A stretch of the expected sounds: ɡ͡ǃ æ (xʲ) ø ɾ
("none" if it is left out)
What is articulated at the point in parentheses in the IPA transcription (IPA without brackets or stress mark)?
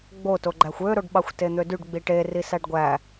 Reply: xʷ